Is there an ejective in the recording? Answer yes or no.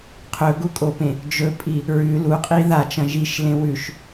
yes